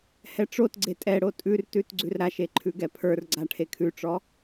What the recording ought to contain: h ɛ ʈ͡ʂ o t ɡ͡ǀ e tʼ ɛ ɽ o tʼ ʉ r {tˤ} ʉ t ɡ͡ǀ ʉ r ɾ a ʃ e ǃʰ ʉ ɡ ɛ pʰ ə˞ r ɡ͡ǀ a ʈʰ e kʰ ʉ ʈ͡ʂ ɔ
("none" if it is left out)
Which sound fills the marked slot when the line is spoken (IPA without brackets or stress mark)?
t